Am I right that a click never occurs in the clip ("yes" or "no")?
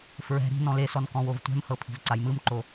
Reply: no